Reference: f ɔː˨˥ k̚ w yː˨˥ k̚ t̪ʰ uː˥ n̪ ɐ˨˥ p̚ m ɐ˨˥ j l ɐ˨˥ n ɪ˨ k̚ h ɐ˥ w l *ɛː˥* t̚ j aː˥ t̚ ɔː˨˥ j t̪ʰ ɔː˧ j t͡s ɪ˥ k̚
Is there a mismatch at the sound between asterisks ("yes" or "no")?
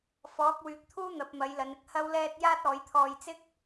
no